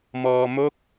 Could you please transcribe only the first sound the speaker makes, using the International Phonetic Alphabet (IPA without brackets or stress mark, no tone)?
m